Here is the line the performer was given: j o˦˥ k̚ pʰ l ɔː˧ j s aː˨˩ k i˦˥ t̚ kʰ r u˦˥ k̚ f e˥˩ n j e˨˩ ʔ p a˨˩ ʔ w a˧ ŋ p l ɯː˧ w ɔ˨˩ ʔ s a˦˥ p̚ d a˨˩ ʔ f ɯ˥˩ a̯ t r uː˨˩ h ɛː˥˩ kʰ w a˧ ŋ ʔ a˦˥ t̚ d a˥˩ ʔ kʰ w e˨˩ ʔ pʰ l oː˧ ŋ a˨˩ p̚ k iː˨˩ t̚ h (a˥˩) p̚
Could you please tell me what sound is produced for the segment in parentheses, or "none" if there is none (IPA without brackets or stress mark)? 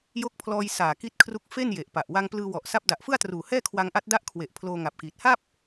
a˥˩